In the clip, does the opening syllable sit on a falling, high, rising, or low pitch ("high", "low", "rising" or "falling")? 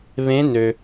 rising